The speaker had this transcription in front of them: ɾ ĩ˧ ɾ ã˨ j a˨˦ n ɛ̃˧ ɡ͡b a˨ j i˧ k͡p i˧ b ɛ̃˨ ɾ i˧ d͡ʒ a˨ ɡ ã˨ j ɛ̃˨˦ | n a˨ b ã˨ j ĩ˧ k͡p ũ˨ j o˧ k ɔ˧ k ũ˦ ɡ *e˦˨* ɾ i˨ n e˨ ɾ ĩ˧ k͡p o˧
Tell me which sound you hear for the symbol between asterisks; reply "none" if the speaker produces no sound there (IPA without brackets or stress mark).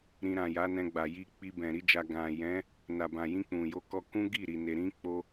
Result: i˦˨